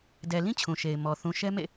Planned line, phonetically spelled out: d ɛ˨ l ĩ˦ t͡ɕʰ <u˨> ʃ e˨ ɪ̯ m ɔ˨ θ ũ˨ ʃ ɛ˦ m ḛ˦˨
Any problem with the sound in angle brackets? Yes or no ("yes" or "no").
yes